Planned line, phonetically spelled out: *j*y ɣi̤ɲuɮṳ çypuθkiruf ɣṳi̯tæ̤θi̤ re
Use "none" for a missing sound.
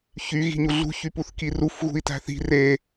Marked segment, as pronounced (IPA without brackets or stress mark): ç